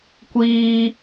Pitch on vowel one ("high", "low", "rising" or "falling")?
high